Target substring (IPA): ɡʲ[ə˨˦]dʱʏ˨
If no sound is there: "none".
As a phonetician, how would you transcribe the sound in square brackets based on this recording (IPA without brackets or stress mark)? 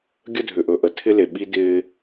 ə˦